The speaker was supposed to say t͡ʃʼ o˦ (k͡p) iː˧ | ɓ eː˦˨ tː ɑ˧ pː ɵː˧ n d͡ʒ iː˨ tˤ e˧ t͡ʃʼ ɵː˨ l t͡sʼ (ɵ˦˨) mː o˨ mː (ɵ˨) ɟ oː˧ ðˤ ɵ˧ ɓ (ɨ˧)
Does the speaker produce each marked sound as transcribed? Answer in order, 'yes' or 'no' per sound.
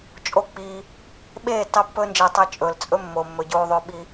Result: yes, no, yes, no

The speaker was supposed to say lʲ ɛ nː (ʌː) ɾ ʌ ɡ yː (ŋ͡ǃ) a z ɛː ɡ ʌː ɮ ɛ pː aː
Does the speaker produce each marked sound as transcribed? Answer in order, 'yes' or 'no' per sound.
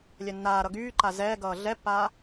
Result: no, no

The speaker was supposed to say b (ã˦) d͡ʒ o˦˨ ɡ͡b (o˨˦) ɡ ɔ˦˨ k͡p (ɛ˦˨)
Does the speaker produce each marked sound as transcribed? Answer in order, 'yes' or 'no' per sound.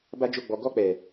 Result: no, no, no

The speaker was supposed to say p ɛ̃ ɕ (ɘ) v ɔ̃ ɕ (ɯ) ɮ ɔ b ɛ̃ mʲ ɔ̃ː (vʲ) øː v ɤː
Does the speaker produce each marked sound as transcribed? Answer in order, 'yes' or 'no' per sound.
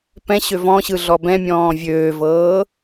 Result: no, yes, yes

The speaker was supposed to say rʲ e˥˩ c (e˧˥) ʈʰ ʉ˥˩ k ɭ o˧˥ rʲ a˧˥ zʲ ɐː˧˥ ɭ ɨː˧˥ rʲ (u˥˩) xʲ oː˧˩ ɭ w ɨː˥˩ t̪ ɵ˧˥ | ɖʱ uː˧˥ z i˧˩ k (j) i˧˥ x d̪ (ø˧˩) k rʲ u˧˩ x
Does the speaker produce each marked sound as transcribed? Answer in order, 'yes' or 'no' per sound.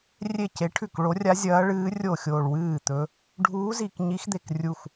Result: yes, no, no, no

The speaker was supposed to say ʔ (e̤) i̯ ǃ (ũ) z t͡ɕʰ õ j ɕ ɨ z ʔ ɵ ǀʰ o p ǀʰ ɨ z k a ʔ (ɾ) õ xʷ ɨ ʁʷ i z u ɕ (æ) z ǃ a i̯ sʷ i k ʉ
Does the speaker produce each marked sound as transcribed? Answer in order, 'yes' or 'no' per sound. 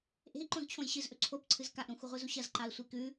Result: yes, no, yes, no

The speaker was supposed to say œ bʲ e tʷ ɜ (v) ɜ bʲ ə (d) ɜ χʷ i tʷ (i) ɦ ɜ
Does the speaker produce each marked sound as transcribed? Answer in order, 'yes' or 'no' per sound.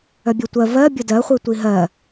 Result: yes, yes, yes

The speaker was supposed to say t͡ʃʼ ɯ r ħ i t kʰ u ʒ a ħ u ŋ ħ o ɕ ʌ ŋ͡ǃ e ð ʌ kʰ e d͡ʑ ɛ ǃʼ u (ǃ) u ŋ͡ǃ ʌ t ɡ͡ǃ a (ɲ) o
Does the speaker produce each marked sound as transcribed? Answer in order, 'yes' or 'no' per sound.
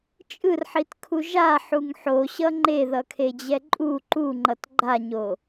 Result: yes, yes

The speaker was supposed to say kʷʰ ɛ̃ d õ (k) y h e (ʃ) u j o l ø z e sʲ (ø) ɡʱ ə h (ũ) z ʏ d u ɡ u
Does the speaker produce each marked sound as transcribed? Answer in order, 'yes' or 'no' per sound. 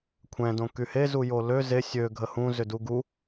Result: yes, no, yes, yes

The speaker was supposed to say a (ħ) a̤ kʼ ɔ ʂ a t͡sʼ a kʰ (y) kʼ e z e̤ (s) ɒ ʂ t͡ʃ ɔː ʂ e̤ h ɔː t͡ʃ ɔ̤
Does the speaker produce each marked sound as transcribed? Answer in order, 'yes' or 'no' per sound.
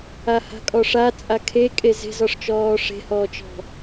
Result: no, no, no

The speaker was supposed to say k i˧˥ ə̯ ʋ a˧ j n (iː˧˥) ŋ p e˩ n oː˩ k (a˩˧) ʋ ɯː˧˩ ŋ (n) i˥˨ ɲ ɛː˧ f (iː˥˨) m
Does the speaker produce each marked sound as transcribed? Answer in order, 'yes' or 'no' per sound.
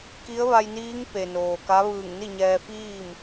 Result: yes, no, yes, yes

